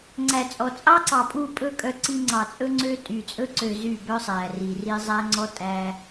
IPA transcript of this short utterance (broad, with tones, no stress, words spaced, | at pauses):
ŋ͡ǀæ˨t͡sʼɔ˨ t͡sʼɑ˦ǀɑ˨ pʼu˦˨pʼɵ˦ kʼœ˦ǀi˦ ŋ͡ǀɑ˨t͡sʼɵ˦ŋ͡ǀø˦ tʼy˨t͡sʼɵ˦ǀø˨ zy˦˨bœ˦sˤæ˨ ri˨ri˦ zˤæ˦ ŋ͡ǀɔ˦tʼæ˦